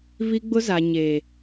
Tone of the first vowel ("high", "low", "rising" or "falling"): high